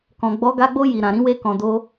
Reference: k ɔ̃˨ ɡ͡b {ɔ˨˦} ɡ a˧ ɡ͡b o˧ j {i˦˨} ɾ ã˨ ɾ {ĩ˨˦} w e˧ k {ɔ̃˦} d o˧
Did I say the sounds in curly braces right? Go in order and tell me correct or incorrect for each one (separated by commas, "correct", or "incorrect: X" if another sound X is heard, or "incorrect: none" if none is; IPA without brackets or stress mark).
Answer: correct, incorrect: i˨, correct, incorrect: ɔ̃˨